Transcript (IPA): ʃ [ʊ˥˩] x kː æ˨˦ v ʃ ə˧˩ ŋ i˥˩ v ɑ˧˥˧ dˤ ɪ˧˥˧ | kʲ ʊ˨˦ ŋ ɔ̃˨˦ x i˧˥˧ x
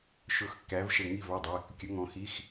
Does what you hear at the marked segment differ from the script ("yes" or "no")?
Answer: yes